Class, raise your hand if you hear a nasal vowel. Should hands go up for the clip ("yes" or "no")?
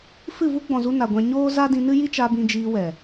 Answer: yes